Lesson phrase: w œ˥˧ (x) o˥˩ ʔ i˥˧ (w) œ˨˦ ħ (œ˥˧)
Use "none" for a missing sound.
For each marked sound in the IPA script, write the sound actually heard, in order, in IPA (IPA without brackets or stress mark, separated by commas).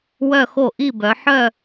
x, b, œ˥˧